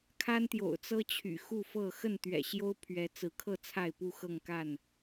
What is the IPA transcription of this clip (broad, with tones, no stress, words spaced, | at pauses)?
kʰa˦nt̪jo̰˨˩ʊ̯t͡sɤ˦ t͡ɕʰy̰˨˩xu˥˨fɤ˥˨ xə˥˨nt̪ɥɛ̰˨˩ɕjo˦ʊ̯ pʰɥɛ˨˦t͡sɹ̩˨˦kʰɤ˥˨ t͡sʰa˥˨ɪ̯pu˥˨xɤ˥˨ŋka˥˨n